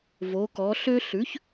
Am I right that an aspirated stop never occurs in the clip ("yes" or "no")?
yes